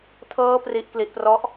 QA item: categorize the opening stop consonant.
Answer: aspirated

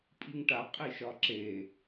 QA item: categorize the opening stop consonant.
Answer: ejective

